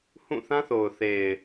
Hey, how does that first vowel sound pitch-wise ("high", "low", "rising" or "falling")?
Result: falling